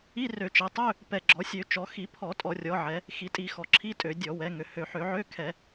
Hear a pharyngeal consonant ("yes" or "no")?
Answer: yes